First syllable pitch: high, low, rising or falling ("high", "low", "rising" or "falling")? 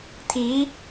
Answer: rising